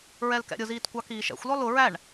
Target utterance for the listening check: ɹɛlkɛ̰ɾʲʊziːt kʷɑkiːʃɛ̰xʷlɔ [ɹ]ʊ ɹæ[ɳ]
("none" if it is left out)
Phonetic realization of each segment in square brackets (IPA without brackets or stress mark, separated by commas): l, ɳ